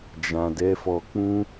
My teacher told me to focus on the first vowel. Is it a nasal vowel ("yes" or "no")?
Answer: yes